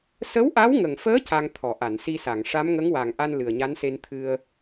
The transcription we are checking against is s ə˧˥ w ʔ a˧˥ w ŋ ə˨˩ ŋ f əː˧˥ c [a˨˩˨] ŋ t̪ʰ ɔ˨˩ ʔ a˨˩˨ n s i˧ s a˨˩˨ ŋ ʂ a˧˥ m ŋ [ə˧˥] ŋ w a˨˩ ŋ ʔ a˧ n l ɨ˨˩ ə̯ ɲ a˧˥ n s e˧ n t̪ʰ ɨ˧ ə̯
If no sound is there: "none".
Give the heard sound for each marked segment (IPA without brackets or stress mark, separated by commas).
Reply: a˧, ə˧˥